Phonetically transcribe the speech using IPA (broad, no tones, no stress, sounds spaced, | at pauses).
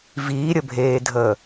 v iː ɾʲ ə bʱ eː dʱ əː